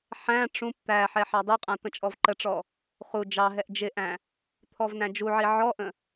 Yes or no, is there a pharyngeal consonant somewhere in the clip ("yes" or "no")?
yes